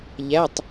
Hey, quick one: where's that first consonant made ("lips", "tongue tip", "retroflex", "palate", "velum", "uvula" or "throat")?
palate